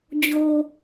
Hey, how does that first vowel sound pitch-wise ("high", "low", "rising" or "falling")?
low